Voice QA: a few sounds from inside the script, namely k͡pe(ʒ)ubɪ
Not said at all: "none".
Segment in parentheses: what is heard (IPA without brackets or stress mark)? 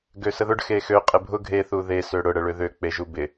ʒ